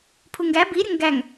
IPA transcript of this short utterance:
pʰ u ŋ ɡ æ b i ɾʲ ə ŋ ɡ æ ŋ

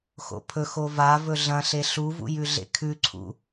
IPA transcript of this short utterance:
x o̰ pʰ ɵ x o v a v ɵ ɮ ɐ̃ ɬ e ɬ u v ṵ j ʉ ɮ ḛ kʰ ʉ ǀʰ ṵ

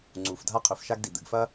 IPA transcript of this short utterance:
ŋ͡ǀ u˩ f dʱ a˥ qʰ ɵ˩ f ʃ a˥ ɡ d i˩ d̪ ɨ˩ ɡ f ɐ˥

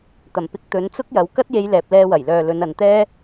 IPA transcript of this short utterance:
t̪ ɐ˨˩ m p ɪ˧ k̚ t̪ ɵ˨˧ n t͡s ʊ˥ k̚ j ɐ˨˧ w k ɐ˥ t̚ j e˧ j l ɛː˨ p̚ l ɛː˧ w ɐ˨˩ j l œː˨ l ɵ˨˧ n ɐ˨ n t̪ ɛː˥

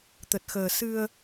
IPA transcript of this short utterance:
t̪ ə˨˩ t̚ x əː˨˩ s ɨ˧ ə̯

